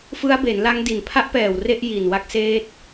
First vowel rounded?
no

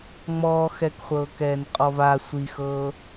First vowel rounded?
yes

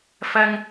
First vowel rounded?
no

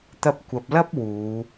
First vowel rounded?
no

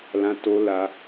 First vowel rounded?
no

